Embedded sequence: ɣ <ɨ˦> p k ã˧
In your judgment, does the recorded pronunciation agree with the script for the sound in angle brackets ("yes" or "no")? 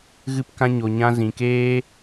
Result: no